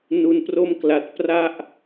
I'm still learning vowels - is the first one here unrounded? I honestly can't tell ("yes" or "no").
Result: no